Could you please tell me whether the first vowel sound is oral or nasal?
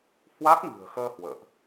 oral